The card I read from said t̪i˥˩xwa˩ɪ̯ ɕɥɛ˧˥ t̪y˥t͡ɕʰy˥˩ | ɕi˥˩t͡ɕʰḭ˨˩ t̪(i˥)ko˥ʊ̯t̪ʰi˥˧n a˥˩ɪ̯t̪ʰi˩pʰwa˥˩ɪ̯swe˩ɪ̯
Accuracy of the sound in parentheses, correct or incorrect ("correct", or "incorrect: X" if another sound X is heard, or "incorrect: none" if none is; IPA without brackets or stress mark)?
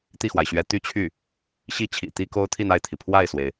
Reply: correct